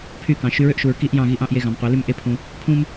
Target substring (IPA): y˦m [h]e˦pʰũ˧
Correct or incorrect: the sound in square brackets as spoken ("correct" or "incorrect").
incorrect